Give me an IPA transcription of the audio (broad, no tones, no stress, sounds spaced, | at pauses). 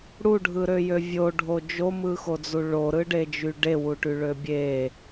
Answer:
ɽ u ɖʱ ɯ ɾ ø j ø vʲ o ɖʱ o d͡ʒ o m ɯ x o d͡z u ɭ o ɾ ɯ ɖ e d͡ʒ y ɖ e w u ʈ y ɭ ø bʲ e